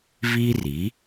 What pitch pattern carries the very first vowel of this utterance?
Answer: high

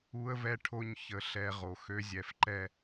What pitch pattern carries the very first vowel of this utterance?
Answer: high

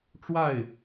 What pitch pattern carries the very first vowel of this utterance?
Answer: falling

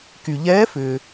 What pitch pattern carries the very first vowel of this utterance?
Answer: low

